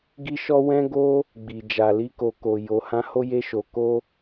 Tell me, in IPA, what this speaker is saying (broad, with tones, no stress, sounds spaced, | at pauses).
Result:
ɡ i˦ ʃ ɔ˦ w ɛ̃˦ ɡ o˦ | ɡ͡b i˨ d͡ʒ a˨ l i˧ k o˨ k o˨ j o˨ h ã˧ h o˦ j e˧ ʃ o˨ k o˧